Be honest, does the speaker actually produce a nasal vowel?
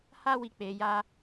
no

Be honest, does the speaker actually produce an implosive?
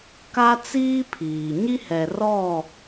no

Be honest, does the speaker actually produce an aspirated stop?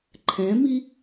yes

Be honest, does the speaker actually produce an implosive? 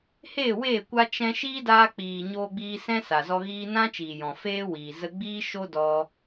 no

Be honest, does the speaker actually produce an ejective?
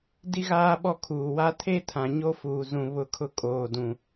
yes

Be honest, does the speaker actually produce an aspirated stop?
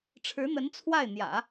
yes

